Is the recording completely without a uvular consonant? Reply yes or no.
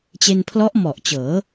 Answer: yes